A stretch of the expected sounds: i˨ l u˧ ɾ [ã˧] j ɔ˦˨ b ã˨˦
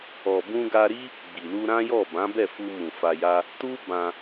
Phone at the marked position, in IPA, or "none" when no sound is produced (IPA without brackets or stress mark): ã˦